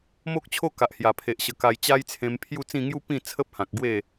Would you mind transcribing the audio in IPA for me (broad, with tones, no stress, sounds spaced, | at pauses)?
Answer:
m o˦ k̚ t͡ɕʰ o˦ k a˨ ʔ h j a˨˩ pʰ e˨ ʔ ɕ ə˧ k a˧ j t͡ɕ a˦ j t͡sʰ ẽ˧ m pʰ j u˥˧ t͡s ĩ˥˧ ŋ j u˦ p ĩ˥˧ t͡sʰ ə˦ p̚ h ã˨ k̚ ɡ w e˥˧